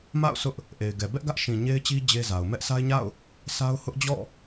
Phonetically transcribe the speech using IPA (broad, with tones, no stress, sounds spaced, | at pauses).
m a̰˦˨ ʊ̯ s ʊ˦ ʔ | ʔ e˨ ɪ̯ ɡ ɛ˨ b ɛ˦ ʔ ɡ ä˦ ʔ ʃ ĩ˨ ɲ e˦ ɪ̯ t͡ɕ i˦ d͡ʑ e˦ z a˨ ʊ̯ m ɛ˦ ʔ sʰ a˦ ɪ̯ ɲ a̰˦˨ ʊ̯ | sʰ a˦ ʊ̯ h ʊ˦ ʔ d͡ʑ ɔ̰˦˨